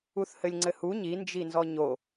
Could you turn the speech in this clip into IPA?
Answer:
uθhɘlʲŋ͡ǀɘhu ɲind͡ʒi nzɔɲo

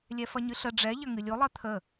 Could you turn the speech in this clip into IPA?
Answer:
lʲɛfɐɲɨɬə ɖ͡ʐɛ ʎɐŋɨlʲo lˠɜt̪ʰə

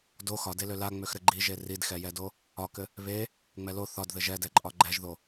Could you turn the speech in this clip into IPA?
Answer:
do xɒdelø laŋ͡møx ɾɘɡ͡ǃiʒe ridxɛjɛdo | ɒkɘ | βe | ŋ͡mɛlo θɒdðɘ ʒɛdɛǃʼɒ ɡ͡ǃɛʒðo

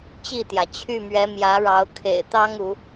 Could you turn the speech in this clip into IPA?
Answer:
t͡ɕi˥˨t̪jä˩ t͡ɕʰy˥˨mɥɛ˨˦ mjä˨˦ɻɑ˨˦ʊ̯ kʰḛ˨˩ɪ̯t̪ɑ˦ŋ u˨˦

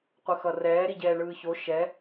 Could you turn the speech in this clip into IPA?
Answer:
qʷɯxʌrɛː ɾiɟɛːɳɯːço ʃɛ

